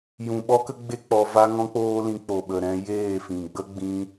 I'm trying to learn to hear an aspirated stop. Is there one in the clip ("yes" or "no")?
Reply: no